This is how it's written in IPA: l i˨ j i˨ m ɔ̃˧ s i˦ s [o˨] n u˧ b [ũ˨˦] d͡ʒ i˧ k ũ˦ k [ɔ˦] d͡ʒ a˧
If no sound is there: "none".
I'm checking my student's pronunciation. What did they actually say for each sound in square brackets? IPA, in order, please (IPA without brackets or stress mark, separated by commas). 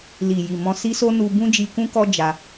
o˦, ũ˦, ɔ˦